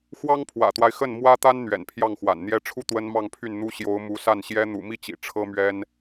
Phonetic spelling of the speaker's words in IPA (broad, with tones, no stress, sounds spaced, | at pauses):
x w ɑ˥ ŋ pʰ w ä̰˨˩ t̪ w a˦ ɪ̯ x ə˥˩ n m w ä˥ t̪ a˥ n n̪ ɥ ɛ̰˨˩ n pʰ j ɑ˥˩ ŋ x w a̰˨˩ n n̪ j ɛ˧˥ ʈ͡ʂʰ u˥˩ t̪ w ə˥ n m ɑ˥˧ ŋ pʰ y˥˩ n n̪ u˥ ɕ j o˧˥ ʊ̯ m u˧˥ s a˥˩ n ɕ j ɛ˥ n̪ ṵ˨˩ m i˥˩ t͡ɕ ḭ˨˩ ʈ͡ʂʰ ɤ˥ m ɥ ɛ˥ n